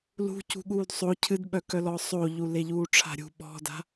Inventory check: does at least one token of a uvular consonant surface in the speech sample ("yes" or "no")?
no